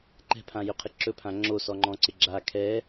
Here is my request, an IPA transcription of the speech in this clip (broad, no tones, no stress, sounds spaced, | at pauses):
ǃ ɛ̤ pʰ ã j ø qʰ ɪ ǁ ɵ pʰ ã ŋ͡ǁ o s ɔ ŋ͡ǃ ɔ̃ ǀ ɪ ɡ͡ǁ a kʰ ɛ